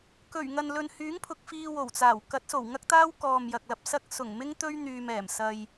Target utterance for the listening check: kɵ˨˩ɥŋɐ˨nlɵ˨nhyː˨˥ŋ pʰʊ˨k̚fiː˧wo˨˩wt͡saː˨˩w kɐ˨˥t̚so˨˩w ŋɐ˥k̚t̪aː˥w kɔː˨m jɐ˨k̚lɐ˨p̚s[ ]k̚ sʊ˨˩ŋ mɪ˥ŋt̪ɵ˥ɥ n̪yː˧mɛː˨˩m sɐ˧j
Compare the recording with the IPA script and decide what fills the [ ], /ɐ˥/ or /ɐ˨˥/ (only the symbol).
ɐ˥